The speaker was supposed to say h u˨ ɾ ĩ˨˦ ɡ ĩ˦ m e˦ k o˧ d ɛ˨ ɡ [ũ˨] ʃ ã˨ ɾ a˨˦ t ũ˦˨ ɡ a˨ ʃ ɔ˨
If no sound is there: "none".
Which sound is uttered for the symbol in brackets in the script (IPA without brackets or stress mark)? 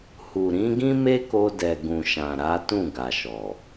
ũ˨